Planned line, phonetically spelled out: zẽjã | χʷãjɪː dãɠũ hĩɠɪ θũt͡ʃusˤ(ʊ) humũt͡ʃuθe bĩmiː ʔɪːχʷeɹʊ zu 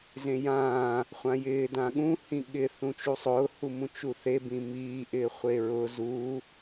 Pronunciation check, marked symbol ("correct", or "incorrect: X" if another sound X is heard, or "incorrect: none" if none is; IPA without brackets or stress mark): incorrect: ʊː